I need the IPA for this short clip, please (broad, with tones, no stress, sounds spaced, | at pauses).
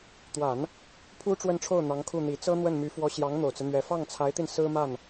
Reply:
t̪ w a˨˩˦ n | pʰ u˥ ʈ͡ʂ w ə˥˧ n ʈ͡ʂʰ o˥˩ ʊ̯ n̪ ɑ˧˥ ŋ kʰ u˥˩ n̪ i˨˩ t͡s ɤ˥ n̪ w ə˥˩ n m y˧˥ f w ɔ˧˥ ɕ j ɑ˧˥ ŋ n̪ o˨˩ ʊ̯ t͡s ɹ̩˦ n̪ ɥ ɛ˧˥ f ɑ˥˩ ŋ t͡sʰ a˧˥ ɪ̯ t̪ i˧ n s ɹ̩˥ m a˥˩ n